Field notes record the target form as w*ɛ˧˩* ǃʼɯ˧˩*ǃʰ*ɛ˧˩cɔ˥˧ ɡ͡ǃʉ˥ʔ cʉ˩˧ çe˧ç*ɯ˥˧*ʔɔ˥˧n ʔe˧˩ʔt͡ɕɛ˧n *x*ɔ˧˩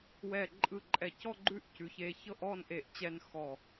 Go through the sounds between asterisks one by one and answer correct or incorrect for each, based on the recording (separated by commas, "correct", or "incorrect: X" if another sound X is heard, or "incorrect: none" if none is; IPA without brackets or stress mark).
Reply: correct, incorrect: ǃʼ, incorrect: ɤ˥˧, correct